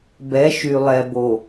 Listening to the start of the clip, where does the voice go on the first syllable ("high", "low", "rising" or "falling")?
rising